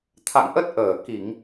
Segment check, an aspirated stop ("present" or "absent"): present